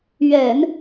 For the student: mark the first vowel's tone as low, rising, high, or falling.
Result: low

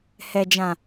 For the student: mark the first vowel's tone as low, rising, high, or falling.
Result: low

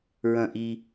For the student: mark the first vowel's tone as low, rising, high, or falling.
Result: falling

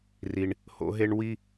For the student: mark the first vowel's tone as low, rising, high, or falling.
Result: high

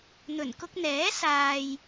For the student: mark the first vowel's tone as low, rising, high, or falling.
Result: low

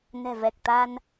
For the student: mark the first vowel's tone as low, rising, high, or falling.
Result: low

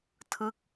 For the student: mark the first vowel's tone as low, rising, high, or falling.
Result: falling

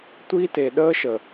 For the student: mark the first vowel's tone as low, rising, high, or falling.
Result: high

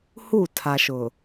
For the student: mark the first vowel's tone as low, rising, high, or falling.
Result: falling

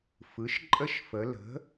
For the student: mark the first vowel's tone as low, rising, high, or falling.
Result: rising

